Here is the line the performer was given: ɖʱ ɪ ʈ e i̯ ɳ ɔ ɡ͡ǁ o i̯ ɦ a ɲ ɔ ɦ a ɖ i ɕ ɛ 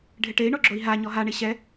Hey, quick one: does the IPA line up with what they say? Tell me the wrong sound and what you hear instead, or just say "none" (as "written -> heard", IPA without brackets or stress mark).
ɖ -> ɳ